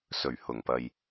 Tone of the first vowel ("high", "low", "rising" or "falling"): low